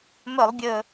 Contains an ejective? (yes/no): no